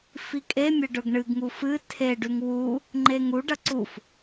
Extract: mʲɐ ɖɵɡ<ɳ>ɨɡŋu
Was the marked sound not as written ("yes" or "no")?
no